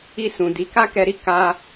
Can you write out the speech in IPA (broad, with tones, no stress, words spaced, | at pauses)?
i˧sũ˨ di˨˦ka˦kɛ˧ɾi˦ ka˧